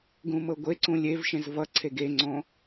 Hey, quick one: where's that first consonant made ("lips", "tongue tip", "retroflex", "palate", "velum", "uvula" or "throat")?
velum